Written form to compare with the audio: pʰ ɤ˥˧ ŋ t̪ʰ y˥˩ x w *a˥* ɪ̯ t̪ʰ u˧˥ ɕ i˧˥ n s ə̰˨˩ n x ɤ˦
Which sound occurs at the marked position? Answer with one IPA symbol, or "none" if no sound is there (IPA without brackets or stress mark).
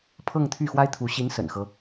a˥